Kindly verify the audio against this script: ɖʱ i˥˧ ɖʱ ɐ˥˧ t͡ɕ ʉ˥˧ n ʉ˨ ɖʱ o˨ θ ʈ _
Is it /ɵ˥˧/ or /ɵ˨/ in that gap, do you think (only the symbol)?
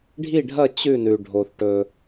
ɵ˨